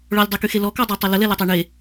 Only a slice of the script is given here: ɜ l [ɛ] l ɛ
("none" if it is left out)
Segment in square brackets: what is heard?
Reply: ə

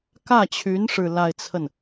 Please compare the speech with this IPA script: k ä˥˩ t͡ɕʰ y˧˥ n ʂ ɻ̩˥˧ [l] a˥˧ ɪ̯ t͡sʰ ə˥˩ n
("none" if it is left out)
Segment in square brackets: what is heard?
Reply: l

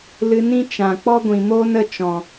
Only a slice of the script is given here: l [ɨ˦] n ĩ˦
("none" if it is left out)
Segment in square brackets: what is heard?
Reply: ɨ˧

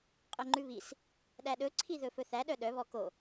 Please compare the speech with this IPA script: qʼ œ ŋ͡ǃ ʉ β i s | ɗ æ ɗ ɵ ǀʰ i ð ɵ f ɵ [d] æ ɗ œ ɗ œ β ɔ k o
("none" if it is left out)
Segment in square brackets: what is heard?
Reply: θ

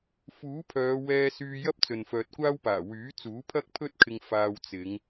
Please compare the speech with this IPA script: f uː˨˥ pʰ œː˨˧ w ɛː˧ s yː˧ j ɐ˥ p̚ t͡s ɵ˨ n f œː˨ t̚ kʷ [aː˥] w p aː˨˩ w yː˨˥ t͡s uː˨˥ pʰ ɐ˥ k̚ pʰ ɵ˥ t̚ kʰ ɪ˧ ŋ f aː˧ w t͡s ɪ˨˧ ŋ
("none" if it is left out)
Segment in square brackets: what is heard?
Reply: aː˥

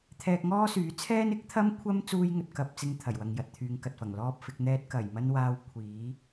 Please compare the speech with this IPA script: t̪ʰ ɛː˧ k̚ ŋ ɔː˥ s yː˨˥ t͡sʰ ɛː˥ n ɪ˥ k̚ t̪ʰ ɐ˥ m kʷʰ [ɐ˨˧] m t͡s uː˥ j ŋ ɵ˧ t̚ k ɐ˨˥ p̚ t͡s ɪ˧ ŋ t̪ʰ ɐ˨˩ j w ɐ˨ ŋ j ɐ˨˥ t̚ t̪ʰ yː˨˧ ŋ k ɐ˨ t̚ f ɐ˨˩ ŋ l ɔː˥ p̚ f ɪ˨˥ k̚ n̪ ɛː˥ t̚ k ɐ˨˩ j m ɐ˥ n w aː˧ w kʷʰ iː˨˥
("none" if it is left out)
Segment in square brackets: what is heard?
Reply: ɐ˥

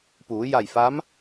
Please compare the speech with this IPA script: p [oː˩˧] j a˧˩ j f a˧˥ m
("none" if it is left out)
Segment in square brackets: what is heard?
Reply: uː˩˧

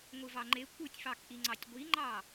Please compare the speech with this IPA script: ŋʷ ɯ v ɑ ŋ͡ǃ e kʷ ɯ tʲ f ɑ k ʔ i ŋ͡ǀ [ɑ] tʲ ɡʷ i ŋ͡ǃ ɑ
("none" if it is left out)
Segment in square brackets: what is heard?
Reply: ɑ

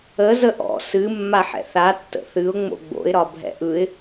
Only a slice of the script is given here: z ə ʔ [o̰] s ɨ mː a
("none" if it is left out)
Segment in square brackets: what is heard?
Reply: ɔ̰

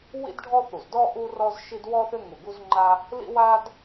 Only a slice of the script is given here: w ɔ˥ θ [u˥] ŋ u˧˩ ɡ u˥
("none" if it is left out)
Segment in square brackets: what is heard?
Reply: ʏ˥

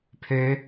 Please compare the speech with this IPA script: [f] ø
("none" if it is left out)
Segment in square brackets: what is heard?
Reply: pʰ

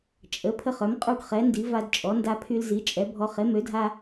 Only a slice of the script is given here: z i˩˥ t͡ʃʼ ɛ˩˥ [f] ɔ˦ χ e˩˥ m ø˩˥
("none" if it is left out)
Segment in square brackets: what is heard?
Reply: bʱ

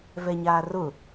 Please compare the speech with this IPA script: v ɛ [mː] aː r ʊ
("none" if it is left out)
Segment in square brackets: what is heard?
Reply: ɲ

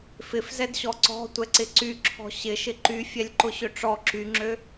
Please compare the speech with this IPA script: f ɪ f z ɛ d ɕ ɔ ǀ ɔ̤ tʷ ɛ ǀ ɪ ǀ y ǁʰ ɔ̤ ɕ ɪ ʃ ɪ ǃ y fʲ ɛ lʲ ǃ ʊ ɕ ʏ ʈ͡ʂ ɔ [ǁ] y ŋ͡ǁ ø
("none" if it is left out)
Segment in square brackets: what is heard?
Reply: ǁ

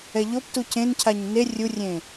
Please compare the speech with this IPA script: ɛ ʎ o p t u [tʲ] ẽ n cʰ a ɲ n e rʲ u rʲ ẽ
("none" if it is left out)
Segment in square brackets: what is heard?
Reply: c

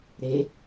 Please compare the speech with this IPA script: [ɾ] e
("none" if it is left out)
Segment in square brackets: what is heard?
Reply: ɾ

